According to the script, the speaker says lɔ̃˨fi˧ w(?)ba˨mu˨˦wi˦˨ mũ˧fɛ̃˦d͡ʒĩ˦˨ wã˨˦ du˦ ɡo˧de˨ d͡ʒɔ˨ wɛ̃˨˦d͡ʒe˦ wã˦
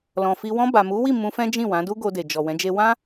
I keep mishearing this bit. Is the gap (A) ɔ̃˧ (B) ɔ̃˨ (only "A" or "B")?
A